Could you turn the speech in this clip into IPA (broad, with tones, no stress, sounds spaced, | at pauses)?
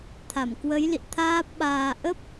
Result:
t̪ʰ a˧˩ m k w ə˨˦ j l ḭ˧˨ t̪ʰ aː˦˥ p̚ ɓ aː˧ ʔ ə˦˥ p̚